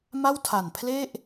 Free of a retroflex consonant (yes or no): yes